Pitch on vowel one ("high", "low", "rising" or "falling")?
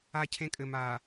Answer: high